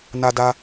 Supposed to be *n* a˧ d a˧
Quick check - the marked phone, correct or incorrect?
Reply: correct